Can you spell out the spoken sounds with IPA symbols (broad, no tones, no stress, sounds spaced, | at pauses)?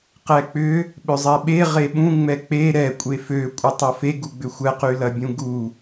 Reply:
q ɛ k͡p ʏ | ɓ ʏ zˤ ɛ ɓ e ʁ e ɓ ũ ŋ͡m ɛ k͡p e ɾ ɛ kʷʼ e f ø kʷʼ ɪ tˤ ɐ f e ɡ u ɡ͡b ʏ xʷ ɛ q y l ɐ bʲ ũ ɡ u